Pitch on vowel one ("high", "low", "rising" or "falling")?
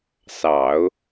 low